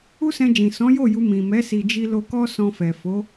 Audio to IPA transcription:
u˦sɛ̃˧d͡ʒĩ˨ sɔ̃˨˦jo˦˨ ju˧ mĩ˨ mɛ˨˦ si˧d͡ʒi˦ lo˧kɔ˦ sɔ̃˧fɛ˨ fo˨˦

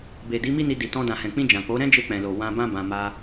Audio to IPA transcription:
be˨ di˨˦mi˦ni˧ di˨tɔ̃˧ dã˨hɛ̃˨k͡pĩ˧ d͡ʒã˨k͡po˨˦ ɾɛ̃˦d͡ʒe˧k͡pɛ̃˨lo˨ wã˧bã˦ bã˧ ma˧

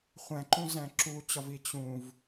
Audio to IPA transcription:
χʷæ̃ǃũzæ̃ ǁut͡ɕɒvi t͡ɕũv

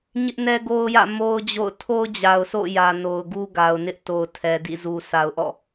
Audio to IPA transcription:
ɲɪ˦ʔnɛ˦ɡo˦ʊ̯jä̰˦˨ mo˦ʊ̯d͡ʑo̰˦˨ʊ̯ tʰo˦ʊ̯d͡ʑa˨ʊ̯so̰˦˨jä˨ no˨ʊ̯ɡu˦ɡa˨ʊ̯nɪ˦ʔ to˨ʊ̯tʰɛ˨ dḭ˦˨ zu˨ sʰa˨ʊ̯ʔɔ̰˦˨

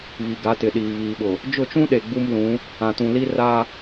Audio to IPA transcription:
βi˨ ɡa˨˦tɪ˨ɗiː˨ βiː˨ɓʊ˨ | d͡ʒʊ˦˨t͡ʃũ˦ɗe˨ ɡ͡bu˦mlũ˨˦ | ã˨tũ˨li˦ ra˦

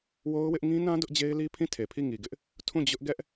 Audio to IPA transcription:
wo˦ʊ̯wɪ˦ʔ ŋĩ˦nã˦ dʊ˦ʔd͡ʑe˦ɪ̯li˦ pʰĩ˦˨tʰe˨pʰi˦˨ ŋi˨ɡɪ˦ʔ | tʰũ˦˨d͡ʑʊ˦ʔ ɡɛ˦ʔ

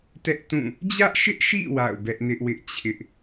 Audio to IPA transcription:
tɛ˦ʔtũ˦˨ | d͡ʑä˦ʔʃɪ˦ʔʃḭ˦˨ wa̰˦˨ʊ̯bɛ˦ʔ nɪ˦ʔwɪ˦ʔt͡ɕʰɪ˦ʔ

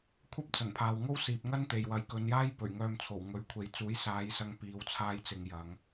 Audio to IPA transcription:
kʷʰɐ˥p̚t͡sɐ˨˩npʰaː˨w ŋo˥wsiː˨p̚ŋɐ˥n t̪e˨jwɐ˨˥j kɵ˨˧njaː˥jpɵ˨˩ɥ ŋœː˧m t͡sʰo˨˩wŋɵ˨˥ɥkʷʰe˨˧j t͡suː˨˥jsaː˨˧j sɐ˧ŋpiː˨˧wt͡sʰaː˧jt͡sɪ˨ŋ jɐ˨˧ŋ

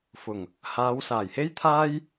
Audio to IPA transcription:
fʊ˨˩ŋ | haː˨˧wsaː˨˩jhe˥j t̪ʰaː˥j

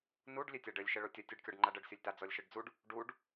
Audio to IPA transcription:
nuɖ lʲetʲaɖɘlʲ ʃɘɭotʲɐ tʲɨɖkʲɔɖŋ͡ǃaɖɘɖ sʲɔlʲta d͡zɔlʲʃɨɖd͡zuɖ | ɖuɖ

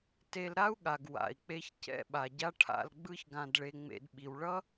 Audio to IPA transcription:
te˧lɾa˥u̯ɠa˩ɡ wa̰˩i̯k͡pe˧ç cɛ̰˥ɓa˩ɟa˥ ʈʰa̰˧lɡ͡bɯ˥ç ɡã˧dɭe˧ŋ͡mḛ˧d ɓi˩wɭʌ˥

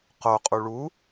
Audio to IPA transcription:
qo qʼuɭu

